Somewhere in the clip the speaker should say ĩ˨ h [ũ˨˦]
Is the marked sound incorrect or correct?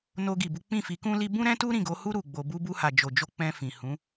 correct